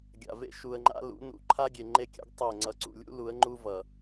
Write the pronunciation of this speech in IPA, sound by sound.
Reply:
ɡʲa̰˨vḛ˦ ʃu˨ə̯ŋ͡ǃa̰˦ lṵ˨˦nṵ˨˦ ǃʰa˦ɡʲe˨ŋ͡ǃe˦˨kʲa̰˦ɡ tˤe˦˨ ŋ͡ǀʌ˨ǀṵ˨lʲṵ˦ lu˨˦ə̯ŋ͡ǃu˦ vʌ˨

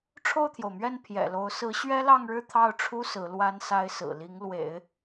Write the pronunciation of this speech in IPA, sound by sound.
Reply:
ʈ͡ʂʰo˥˩ʊ̯t̪ʰjo˩ʊ̯mɥɛ˥˩n pʰjɛ̰˨˩lo˧˥ʊ̯ sɹ̩˧˥ ɕɥɛ˥lɑ˥˧ŋɻɻ̩˥˧ t̪ʰɑ˥˩ʊ̯ʈ͡ʂʰu˥ sɹ̩˧˥lwa˥nsa˥ɪ̯ sɹ̩˨˩li˧˥ŋlwḛ˨˩˦ɪ̯

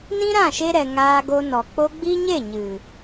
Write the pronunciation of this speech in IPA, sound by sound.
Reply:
nĩ˦ɾã˦˨ʃe˧ɾɛ˨ ŋaː˧ɡo˧nɔ˨ k͡po˧ɡ͡bi˦ɲe˦˨ ɲɨ˨

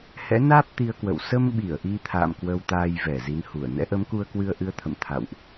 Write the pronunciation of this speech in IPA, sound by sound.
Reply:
hɛ̰˧˥naː˦˥p̚ t̪i˧ə̯kwə̰˧˨w sə˧mɓi˧˩ə̯ ʔi˧t̪ʰa̰ː˧˨m kwə˧wt̪aː˧jvɛ˧˩ zi˨˦nhu˧˩ə̯ nɛ̰˧˥ʔə˨˦mku˧ə̯kwɨ˧ə̯ ʔɨ˧ə̯t̪ʰə̰˧˨m t̪ʰa̰˧˨wʔ

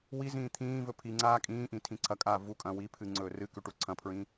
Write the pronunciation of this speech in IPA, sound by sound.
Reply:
wizĩː t̪ʰĩːvɵ pʰi ŋ͡ǀaːkʼĩːʔĩ tʰĩǀʰɐkʼaː vukʼɐ̃ wipʰɨ ŋ͡ǀɵːrɨkʉ ʈuǀʰɐ̃pʰɹĩ

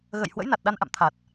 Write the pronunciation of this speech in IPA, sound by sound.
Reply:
ɣə̰˧˨j hwə̰˧˥jna˨˩t̚ɗa˧nʔa̰˧˨m t̪ʰa˨˩t̚

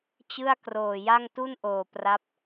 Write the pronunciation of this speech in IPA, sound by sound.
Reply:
t͡ɕɯ˥˩a̯kroː˨˩ja˥˩ŋ tu˥˩nʔoː˨˩ pra˦˥p̚

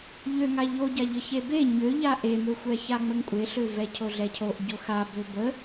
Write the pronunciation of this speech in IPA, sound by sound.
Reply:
ʎøŋa ʎoɟaʎə çebe ɲøʎa ʔemøxʷɛça ŋ͡məŋkʷʼeɬø vɛcʰoɮɛcʰoʔ ɟoxa bøbə

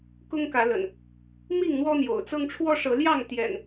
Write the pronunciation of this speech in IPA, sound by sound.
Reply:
kʊ˦ŋkä˨˦lə̰˨˩n | mi˥˨ŋn̪wɔ˦n̪jo̰˨˩ʊ̯t͡sɤ˦ŋ ʈ͡ʂʰwɔ˦ʂɤ˨˦ljɑ˥˨ŋ t̪jɛ̰˨˩n

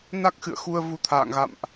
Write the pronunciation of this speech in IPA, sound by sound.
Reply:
na˦˥k̚xɨ̰˧˨ə̯ xu˧ə̯ vu˨˦t̪ʰa̰ː˧˨ŋɣa̰˧˨mʔ

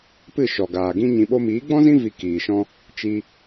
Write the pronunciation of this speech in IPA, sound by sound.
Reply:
pɨ˦˨ʃɔ˨ ɡaː˨ɡĩ˦ɲĩ˧ ɓo˧miː˨˦ɡ͡bɔ̃˦zĩ˦ vi˧kiː˨ʃɔ̃˦ | t͡ʃi˧

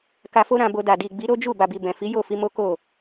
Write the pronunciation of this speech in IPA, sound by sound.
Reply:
ka˧fo˦ɾã˧bo˧ da˨di˨ɡ͡bi˨˦ ɾo˦d͡ʒu˦˨ ba˨bi˨ bɛ̃˨fi˨˦ jo˦˨fi˧ mo˦ko˦˨

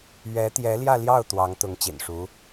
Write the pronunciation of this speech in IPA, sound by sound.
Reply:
ɥɛ˧˥t̪jɛ˧˥ljä˥˧ljɑ˥˩ʊ̯ t̪wɑ˧˥ŋt̪ʊ˧˥ŋ t͡ɕḭ˨˩nʂu˧˥

